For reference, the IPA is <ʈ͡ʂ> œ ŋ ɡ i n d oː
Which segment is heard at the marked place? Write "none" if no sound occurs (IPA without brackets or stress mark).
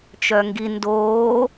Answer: t͡ʃ